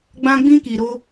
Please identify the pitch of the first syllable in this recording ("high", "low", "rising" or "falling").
high